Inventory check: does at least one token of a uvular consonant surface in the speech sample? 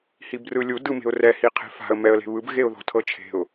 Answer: yes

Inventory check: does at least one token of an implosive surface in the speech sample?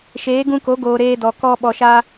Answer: yes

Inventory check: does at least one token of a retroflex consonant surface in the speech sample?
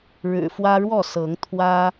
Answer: yes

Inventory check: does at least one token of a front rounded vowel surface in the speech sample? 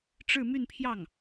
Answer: yes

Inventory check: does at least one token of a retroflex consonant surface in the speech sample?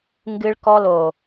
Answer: yes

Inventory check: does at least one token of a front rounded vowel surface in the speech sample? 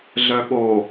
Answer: yes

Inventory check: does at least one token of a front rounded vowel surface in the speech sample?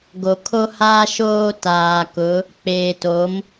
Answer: no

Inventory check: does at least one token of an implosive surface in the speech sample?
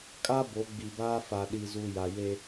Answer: yes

